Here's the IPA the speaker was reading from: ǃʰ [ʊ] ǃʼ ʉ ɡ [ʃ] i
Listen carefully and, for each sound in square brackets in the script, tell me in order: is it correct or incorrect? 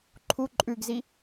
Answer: incorrect: u, incorrect: z

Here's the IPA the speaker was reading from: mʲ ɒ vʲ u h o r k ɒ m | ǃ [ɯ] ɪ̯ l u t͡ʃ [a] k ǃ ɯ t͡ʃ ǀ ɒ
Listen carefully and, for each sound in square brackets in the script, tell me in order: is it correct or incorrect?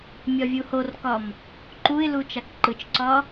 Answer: incorrect: u, correct

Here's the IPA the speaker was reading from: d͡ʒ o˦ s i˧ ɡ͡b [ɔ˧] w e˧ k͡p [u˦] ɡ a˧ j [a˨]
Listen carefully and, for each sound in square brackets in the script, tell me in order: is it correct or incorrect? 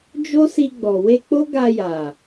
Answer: incorrect: ɔ˨, incorrect: o˦, correct

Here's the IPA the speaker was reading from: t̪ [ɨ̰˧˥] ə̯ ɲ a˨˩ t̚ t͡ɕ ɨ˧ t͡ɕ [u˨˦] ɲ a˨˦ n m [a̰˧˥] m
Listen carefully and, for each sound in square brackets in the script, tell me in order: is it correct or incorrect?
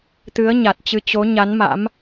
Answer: incorrect: ɨ˨˦, incorrect: o˨˦, correct

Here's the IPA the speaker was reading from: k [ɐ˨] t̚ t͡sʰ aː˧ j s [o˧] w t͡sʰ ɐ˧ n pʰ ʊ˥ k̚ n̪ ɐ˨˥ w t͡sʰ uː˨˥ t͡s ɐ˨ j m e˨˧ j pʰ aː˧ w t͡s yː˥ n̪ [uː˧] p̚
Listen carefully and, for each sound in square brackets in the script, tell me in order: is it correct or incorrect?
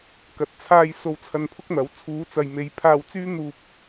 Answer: correct, correct, correct

